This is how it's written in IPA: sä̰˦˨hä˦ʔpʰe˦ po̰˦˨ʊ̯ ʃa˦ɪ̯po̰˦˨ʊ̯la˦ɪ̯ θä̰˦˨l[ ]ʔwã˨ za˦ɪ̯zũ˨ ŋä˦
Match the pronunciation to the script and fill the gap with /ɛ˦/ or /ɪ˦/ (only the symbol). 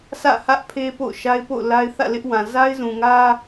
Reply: ɪ˦